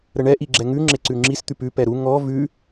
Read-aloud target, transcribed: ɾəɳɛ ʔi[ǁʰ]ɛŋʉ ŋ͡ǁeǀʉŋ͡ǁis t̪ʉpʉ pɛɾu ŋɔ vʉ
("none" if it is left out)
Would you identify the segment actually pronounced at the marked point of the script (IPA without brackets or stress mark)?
ɡ͡ǁ